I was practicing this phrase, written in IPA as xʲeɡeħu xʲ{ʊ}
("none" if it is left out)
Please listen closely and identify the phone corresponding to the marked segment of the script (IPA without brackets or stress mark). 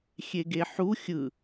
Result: ɯ